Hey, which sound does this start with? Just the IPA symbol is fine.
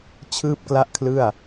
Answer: t͡ɕʰ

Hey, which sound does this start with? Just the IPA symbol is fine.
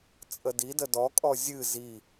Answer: t͡sʼ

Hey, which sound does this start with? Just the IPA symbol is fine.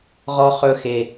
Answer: ʁ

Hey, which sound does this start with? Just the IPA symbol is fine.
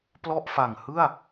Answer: p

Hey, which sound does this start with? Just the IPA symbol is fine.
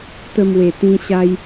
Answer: t̪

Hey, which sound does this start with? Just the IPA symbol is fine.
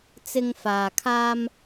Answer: t͡s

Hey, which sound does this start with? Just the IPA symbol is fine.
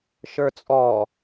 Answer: ʃ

